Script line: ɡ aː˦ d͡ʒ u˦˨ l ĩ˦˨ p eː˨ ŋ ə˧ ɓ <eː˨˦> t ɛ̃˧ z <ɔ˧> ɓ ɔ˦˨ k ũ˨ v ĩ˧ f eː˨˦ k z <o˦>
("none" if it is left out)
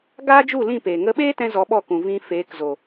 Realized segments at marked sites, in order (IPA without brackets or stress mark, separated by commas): eː˦, ɔ˧, o˨